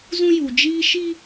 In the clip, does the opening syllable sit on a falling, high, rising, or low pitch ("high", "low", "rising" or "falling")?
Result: high